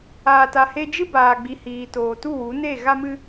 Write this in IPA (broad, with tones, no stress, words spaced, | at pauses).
aː˧ta˧he˦ d͡ʒɨ˧ baː˨ɡ͡bi˨hiː˨ toː˨tu˦˨wu˨˦ne˦˨ ɣa˧mɨ˧